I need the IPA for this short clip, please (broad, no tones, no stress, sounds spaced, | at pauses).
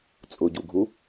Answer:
t͡sʼ ʊ ɟ u ɡʱ u